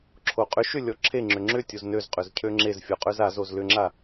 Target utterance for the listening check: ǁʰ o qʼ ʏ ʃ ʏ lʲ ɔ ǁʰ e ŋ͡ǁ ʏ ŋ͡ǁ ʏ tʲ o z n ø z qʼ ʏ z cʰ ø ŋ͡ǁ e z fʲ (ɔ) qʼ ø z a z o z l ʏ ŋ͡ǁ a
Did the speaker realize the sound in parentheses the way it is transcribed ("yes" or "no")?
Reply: yes